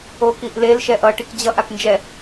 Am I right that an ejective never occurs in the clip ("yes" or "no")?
yes